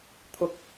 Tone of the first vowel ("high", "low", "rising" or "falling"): high